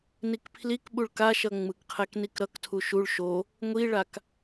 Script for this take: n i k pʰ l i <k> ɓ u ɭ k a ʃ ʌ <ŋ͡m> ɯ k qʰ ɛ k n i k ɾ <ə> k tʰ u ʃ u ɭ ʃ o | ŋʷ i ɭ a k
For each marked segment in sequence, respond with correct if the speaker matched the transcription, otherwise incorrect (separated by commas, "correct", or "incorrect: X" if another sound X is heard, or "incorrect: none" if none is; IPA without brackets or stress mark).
correct, correct, incorrect: ʌ